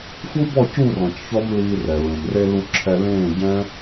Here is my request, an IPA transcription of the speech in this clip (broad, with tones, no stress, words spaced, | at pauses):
fu˦bɔ˦˨ cu˦˨rɔ̃˨c çɔ˦mliː˧rɛ˨ ɹẽ˨mre˧lu˧ ǁʰɛ˧lẽː˦˨ɟɛ̃˦